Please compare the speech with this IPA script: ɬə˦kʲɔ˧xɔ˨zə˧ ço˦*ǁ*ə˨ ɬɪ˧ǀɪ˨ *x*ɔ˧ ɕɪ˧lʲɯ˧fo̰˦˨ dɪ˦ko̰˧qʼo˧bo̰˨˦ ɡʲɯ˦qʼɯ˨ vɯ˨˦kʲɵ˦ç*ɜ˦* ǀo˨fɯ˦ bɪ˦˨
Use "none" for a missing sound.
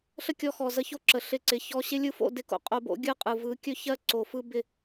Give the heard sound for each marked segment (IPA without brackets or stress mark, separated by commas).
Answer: ǁ, ç, ɜ˦